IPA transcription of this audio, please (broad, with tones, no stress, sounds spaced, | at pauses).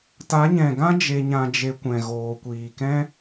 t a˨˦ ɲ ɛ̃˨ ɡ ã˦ d͡ʒ e˧ ɲ ã˧ d͡ʒ e˧ kʷ ɛ̃˨ ɣ oː˨ kʷ iː˨ k ɛ̃˦